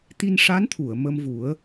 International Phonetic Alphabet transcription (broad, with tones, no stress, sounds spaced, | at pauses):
t̪ i˧ n ʂ a˧˥ n t̪ʰ u˨˩˨ ə̯ m ə˧ m v u˨˩˦ ə̯